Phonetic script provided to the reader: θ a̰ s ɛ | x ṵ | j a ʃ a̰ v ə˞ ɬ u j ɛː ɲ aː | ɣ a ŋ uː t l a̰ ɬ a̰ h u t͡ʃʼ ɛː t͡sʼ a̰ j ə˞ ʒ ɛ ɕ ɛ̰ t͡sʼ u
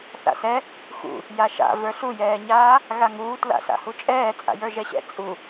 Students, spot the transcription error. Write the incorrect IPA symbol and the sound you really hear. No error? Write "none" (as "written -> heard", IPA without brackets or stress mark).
none